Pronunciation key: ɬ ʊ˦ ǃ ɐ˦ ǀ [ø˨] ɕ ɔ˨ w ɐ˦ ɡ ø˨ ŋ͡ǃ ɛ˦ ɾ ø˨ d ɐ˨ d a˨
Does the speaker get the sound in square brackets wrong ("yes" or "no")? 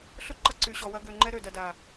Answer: yes